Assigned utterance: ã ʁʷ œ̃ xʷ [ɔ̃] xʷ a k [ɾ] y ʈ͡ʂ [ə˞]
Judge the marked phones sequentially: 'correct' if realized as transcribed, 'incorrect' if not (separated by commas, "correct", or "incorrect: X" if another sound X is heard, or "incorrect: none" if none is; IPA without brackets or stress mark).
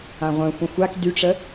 incorrect: ə̃, incorrect: d, incorrect: ə